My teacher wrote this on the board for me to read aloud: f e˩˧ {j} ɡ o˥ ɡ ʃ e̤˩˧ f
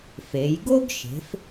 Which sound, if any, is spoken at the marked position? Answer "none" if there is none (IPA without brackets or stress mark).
j